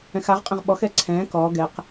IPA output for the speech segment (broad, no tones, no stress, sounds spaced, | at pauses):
ɛ̃ x a ʁ qʼ ɛ̃ ʁ ɓ ɔ x ɛ ǀʰ ɛ̃ː k ɔː ɡ ɛ q